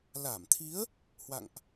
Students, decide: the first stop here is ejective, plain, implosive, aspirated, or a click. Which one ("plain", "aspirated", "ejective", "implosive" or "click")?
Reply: aspirated